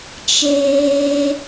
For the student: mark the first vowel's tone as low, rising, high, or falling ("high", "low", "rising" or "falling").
high